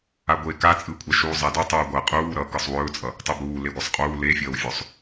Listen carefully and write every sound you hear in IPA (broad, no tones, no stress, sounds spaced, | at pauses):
a ɡʷ e k a t͡sʼ ɯ kʷʼ a ʃ uː zˤ a d ɵ tˤ uː ɡʷ ɐ qʼ uː ɾ ʌ k ɯ sˤ w ɵː t͡sʼ ʌ | tˤ u b uː l e ɡʷ ʌ sˤ qʼ uː l e fʲ ʌː w fʲ ɵ sˤ